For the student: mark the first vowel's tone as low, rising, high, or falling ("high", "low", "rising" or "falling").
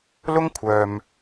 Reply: high